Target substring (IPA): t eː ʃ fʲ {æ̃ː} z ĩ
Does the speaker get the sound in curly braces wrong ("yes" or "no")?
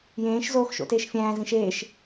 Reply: no